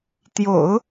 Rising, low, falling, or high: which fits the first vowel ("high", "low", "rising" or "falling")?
low